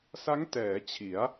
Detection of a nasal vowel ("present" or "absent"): absent